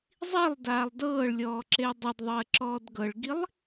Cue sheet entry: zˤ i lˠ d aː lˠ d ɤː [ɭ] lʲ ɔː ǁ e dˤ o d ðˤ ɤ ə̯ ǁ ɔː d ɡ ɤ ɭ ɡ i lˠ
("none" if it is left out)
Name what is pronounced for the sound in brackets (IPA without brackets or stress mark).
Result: ɭ